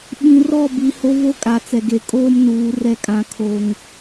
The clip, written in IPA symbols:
ɓ ĩ˨ r ɔ˦˨ b i˨ h o˦ v o˦ kʼ a˨ t͡s ɛ˨ ɡ e˨ kʼ oː˦ m n uː˨˦ r ɛ˦ kʼ ã˦ kʰ o˦ ŋ

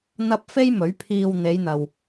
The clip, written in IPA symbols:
n̪ ɐ˧ p̚ f e˥ j m ɵ˨˥ ɥ pʰ iː˧ w n̪ e˨˧ j n̪ ɐ˨ w

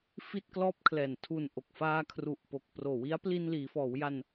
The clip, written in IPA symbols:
f i˥˩ t̚ k l ɔː˥˩ p̚ kʰ l ɛː˨˩ n tʰ u˨˩ n ʔ o˨˩ k̚ f aː˧ kʰ r u˨˩ ʔ p o˨˩ k̚ p r oː˨˩ w i˦˥ a̯ p l i˧ n l iː˩˦ f ɔː˩˦ w j a˧ n

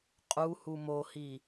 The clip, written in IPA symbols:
qʼ u h u m o h i

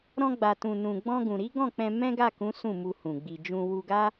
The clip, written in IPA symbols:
ɾ ɔ̃˧ ɡ͡b a˨ t ũ˨ n ũ˨ ɡ͡b ɔ̃˧ ɡ ũ˨ ɾ i˨˦ ɡ ɔ̃˦˨ k͡p ɛ̃˧ m ɛ̃˦ ɡ a˦˨ k ũ˨˦ s ũ˦˨ m u˧ h ũ˨ ɡ͡b i˨ d͡ʒ ũ˧ w u˧ ɡ a˦

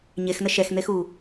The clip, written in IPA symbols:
ɲ e x n ə ʃ ɛ x n̪ e x u

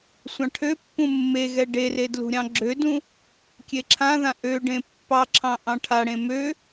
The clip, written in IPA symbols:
sʷ ɑ̃ ʈʰ ø pː ũ mː e ɣ ɛ ɖ e r e d l ṳ ɾʲ ɑ̃ ɡ͡ǁ ø d ũ | kʲ e ǁʰ ã ð ã ʔ ø ɖ ẽ pː ɑ ǁʰ ɑ̃ ʔ ɑ̃ ʈʰ a ɽ ẽ m ø

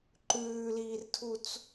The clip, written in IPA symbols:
ǃ ʉː l iː r tʰ u t͡s

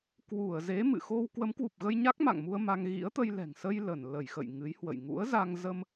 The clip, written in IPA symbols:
k w u˧˩ ə̯ z e˨˦ m ɨ̰˧˨ x o˧ w k w ə˨˦ m k w u˨˩ p̚ ɣ ə˧ j ɲ a˦˥ k̚ m a̰˧˨ ŋ m u˧ ə̯ m a˧ ŋ ɣ ḭ˧˥ ə̯ t̪ ə˧ j l ɛ̤˨˩ ŋ s ə˧ j l ə˧˩ n l ə˧˩ j x ə̰˧˨ j ŋ ɨ˨˦ j h w ə̰˧˨ j ŋ ṵ˧˥ ə̯ z a˧ ŋ z ə˧ m

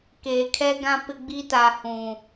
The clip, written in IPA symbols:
k eː˨ kʰ ɛ˦ ɡ ã˦ p ɪ˦ ɡ͡b i˦ t a˨ h ũ˨

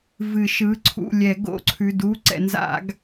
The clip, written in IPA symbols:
v ɨ˨˩˦ ʃ ɯ˩˧˩ ǀʰ ṵ˦˨ lʲ ɛ˨˩˦ ɡ o̰˨˦ ǀʰ ʉ˩˧˩ d u˧˥˧ ǀ ɛ̰˨˩˦ n z a̰˨˩˦ ɡ

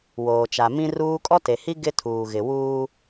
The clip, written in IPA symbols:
w oː˨ t͡ʃ a˨ m ĩ˦ r uː˦ kʼ ɔ˦ t e˨ h i˦ ɡ ɪ˦ tʰ uː˨ ɣ ɪ˨ w uː˦

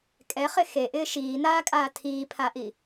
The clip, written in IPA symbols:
kʼ ɛ χ ɪ x e ʔ ɪː ʃ iː n aː kʼ aː tʰ iː pʰ a ʔ i

